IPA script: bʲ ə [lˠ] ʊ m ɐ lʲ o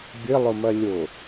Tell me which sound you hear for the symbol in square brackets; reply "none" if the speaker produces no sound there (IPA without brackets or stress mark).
lˠ